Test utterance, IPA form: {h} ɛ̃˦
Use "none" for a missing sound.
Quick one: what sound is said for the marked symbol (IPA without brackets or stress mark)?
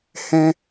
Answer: h